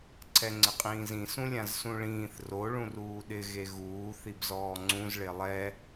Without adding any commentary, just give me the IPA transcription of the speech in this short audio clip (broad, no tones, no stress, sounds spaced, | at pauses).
ǀʰ ɛ ŋ͡ǀ ɪ qʼ ĩː z ĩ s ũ lʲ ã z s ũ ɭ ĩː θ r o ɭ ũ r uː ɗ ɪ ɣ e ɣ uː θ i b z ɔː ŋ͡ǀ ũ z ɭ e lˠ ɛ